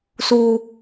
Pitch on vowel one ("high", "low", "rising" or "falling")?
high